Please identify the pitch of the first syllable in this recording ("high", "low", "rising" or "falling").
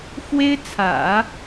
high